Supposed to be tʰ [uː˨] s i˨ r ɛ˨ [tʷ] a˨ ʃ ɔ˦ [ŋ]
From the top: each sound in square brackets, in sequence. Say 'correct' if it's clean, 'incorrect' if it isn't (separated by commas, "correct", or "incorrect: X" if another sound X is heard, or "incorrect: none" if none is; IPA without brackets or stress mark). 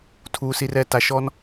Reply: correct, incorrect: t, incorrect: n